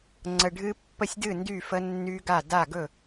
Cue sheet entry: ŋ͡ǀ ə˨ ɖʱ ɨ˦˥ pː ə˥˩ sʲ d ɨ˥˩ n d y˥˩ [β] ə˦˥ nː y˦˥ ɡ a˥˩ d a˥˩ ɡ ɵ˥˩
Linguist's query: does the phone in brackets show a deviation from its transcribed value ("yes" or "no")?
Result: yes